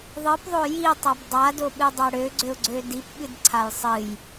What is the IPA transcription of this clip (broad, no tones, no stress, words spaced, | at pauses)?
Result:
ðˤɨpðˤo jitˤab dˤadoɓɨdˤa ɽøɡ͡ǀøʊ̯ɡ͡ǀø dipɓɨdǀʰaj sˤɨj